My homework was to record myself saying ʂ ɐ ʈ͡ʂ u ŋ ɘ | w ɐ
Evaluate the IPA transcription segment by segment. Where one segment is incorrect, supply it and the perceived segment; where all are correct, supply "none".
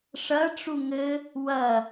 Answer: none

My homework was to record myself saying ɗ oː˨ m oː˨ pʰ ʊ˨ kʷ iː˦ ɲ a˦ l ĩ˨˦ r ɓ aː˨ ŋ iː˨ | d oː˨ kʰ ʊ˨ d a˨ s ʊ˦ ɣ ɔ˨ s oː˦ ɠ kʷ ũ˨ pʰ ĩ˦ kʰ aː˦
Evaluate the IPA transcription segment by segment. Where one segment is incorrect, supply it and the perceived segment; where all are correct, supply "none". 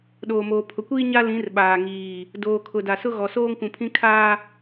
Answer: ɠ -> ŋ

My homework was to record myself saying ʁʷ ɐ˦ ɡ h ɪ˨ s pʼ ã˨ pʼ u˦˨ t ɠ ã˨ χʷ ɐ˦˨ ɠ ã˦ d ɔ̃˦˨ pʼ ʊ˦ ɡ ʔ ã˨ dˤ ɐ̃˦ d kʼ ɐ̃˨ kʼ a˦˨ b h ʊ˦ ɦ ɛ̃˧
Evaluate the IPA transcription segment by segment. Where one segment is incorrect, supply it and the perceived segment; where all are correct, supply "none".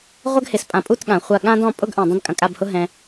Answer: none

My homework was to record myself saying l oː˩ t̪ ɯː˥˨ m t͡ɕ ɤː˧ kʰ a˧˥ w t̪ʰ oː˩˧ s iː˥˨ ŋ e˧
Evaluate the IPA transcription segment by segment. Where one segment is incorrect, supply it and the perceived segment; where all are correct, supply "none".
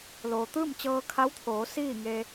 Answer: none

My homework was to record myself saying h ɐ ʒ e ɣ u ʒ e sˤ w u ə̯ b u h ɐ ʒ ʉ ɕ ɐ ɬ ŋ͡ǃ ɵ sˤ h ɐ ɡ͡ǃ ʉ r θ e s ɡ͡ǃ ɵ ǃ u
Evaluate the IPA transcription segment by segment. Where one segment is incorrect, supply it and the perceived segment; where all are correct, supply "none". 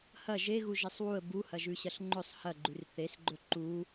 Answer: none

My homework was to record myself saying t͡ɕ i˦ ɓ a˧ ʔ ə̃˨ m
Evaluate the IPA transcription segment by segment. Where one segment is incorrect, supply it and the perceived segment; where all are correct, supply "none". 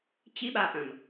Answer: none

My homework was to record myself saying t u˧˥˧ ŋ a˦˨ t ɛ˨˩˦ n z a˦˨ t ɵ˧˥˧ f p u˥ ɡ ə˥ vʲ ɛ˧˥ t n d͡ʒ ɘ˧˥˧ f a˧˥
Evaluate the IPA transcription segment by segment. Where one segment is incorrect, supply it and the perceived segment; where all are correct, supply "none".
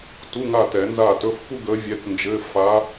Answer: ə˥ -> ə˧˥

